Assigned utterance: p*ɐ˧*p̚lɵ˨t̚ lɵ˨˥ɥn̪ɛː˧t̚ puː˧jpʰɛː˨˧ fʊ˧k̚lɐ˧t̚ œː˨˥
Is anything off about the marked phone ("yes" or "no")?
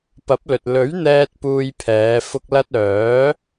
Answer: yes